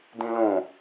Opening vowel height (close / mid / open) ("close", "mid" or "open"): close